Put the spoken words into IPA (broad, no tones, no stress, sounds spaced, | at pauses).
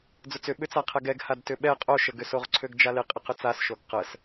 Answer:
d͡z ʊ t͡s ʏ ɓ ʏ t͡s a qʰ ɛ ɡ ɛ ɡ h a d t ʏ ɓ ɛ qʼ o ʃ ə ɡ ʏ s o ʁ ǀʰ ø ɡ d͡ʒ a l ɪ qʼ ɪ q ʏ t͡s a s ʃ o ɡ q ə s